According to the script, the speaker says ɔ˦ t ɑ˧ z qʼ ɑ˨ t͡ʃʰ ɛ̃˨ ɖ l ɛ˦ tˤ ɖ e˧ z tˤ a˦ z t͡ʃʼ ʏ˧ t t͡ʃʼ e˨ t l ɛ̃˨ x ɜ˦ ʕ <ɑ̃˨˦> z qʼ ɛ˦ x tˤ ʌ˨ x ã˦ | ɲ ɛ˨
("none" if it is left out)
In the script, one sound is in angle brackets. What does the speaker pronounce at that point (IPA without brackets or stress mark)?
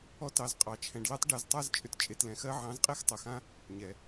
ɑ̃˨˦